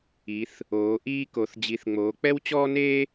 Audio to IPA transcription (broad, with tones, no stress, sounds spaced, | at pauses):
i˨˦ θ | oː˨˦ ʔ iː˥ k o˨˦ θ d͡ʑ i˨˦ θ ŋ͡m oː˨˦ k͡p ɛ˥ w t͡ɕ ɔː˥ n eː˥